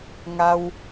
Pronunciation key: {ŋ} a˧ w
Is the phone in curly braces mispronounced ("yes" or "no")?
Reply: no